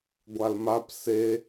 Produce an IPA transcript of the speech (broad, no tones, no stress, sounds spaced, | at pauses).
ɡʷ a l m a p s e